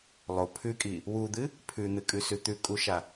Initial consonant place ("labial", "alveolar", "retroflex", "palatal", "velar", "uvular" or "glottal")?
alveolar